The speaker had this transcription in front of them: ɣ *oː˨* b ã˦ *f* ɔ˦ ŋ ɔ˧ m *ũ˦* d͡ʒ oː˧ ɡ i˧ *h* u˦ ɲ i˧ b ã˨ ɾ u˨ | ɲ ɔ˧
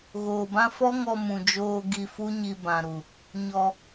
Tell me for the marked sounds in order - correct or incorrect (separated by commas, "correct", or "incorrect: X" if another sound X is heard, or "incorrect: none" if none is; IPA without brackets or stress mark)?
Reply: correct, correct, incorrect: ũ˨, incorrect: f